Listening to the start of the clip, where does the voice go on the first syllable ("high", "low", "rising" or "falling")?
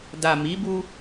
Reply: low